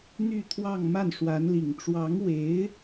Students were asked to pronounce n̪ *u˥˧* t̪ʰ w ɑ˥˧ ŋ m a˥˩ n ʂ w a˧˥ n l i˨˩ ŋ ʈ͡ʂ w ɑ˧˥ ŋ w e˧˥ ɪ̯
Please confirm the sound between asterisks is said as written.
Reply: no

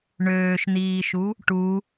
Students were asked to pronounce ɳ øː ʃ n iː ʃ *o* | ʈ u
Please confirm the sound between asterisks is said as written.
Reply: no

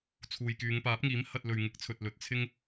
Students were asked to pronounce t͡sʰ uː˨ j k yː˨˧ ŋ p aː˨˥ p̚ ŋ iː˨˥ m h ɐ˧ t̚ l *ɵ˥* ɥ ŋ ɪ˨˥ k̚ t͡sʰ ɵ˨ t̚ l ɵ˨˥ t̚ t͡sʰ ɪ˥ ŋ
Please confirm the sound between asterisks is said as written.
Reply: no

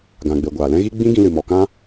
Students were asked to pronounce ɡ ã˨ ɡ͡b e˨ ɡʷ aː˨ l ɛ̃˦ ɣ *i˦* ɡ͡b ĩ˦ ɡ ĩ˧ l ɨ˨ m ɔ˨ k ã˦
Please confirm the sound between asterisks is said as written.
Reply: yes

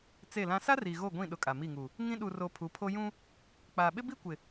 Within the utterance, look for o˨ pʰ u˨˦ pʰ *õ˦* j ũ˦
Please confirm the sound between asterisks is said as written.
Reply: no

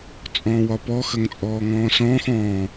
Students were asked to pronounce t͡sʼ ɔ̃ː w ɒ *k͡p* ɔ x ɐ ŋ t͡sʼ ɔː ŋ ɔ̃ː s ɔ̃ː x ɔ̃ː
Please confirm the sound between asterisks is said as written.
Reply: no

